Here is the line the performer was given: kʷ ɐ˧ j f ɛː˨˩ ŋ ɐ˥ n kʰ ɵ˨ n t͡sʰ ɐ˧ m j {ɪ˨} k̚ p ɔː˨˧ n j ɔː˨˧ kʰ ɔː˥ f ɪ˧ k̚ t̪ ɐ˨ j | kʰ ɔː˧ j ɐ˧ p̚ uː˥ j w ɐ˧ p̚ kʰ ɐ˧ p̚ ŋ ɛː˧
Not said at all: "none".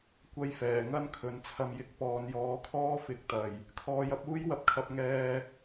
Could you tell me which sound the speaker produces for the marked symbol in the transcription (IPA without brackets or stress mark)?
ɪ˨˥